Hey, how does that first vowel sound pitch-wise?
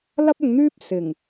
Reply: high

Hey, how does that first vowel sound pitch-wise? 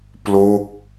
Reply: falling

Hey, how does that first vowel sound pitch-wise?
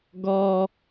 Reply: high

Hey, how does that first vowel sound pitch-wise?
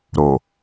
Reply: low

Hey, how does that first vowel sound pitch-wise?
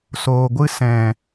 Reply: low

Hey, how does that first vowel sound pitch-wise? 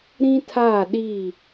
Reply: high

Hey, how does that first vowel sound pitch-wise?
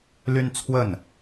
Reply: high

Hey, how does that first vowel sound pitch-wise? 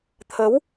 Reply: rising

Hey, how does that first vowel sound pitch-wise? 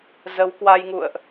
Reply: rising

